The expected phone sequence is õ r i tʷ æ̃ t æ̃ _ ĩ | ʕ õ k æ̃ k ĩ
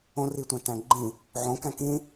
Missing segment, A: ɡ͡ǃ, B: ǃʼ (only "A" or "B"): A